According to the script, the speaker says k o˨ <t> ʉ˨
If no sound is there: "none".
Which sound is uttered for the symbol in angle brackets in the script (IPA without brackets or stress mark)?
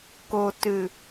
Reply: t